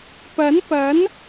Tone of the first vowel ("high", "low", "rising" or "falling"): rising